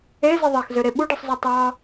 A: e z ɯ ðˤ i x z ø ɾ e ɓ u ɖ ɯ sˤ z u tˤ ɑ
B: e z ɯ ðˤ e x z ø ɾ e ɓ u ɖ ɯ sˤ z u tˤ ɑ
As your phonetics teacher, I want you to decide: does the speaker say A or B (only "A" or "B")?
B